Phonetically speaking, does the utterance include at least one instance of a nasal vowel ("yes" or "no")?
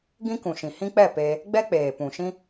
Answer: yes